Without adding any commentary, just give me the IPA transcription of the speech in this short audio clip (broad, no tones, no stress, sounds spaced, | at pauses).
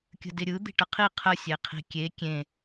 kʲ ə̤ d ɪ ɾʲ ɯ d̪ i̤ ʈ ə qʰ i qʰ ə sʲ e qʰ i̤ kʲ e kʲ ẽ